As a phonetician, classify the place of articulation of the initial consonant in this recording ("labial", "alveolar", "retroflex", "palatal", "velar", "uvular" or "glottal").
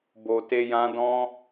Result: labial